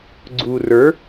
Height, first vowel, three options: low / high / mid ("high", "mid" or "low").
high